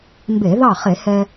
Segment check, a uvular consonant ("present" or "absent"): present